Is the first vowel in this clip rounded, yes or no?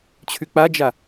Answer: yes